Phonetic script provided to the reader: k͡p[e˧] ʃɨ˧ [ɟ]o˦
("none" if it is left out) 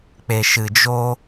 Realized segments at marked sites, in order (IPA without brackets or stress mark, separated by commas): e˧, d͡ʒ